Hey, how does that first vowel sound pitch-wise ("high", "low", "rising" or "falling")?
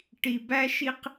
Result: low